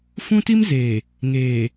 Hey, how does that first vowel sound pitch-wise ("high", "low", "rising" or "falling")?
high